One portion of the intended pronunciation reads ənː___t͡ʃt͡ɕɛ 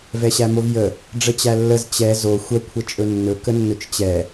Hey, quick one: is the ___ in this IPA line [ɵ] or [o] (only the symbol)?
ɵ